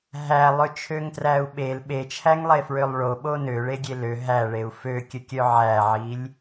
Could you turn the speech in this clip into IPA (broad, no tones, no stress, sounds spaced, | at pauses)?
ɦ æ lˠ ø t͡ʃʰ ø ŋ t r æ u̯ ɓ e l ɓ e t͡ʃʰ æ ŋ lˠ e f ɹ ø lˠ ɭ o ɓ o n ø ɭ e ɡʲ e l ø ɦ æ ɭ e u̯ f ø kʲ ə kʲ œ ʕ æ ʕ i lʲ